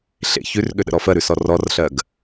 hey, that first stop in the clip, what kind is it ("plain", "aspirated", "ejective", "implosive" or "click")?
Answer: implosive